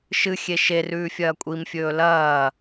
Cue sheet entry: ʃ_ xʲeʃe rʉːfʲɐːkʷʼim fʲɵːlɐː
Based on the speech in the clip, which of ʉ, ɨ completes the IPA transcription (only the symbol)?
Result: ɨ